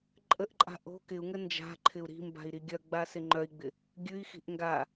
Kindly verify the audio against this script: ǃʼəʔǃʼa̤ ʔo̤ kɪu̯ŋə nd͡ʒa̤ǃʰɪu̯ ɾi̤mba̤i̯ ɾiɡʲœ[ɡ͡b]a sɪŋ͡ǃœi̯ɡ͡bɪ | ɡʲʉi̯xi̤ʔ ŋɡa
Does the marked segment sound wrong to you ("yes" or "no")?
no